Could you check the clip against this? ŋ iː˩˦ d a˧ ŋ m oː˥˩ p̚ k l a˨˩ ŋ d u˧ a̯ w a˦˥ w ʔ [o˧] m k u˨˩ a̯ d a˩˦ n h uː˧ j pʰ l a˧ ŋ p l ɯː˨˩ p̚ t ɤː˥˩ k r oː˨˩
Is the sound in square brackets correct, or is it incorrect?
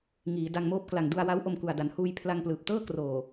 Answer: correct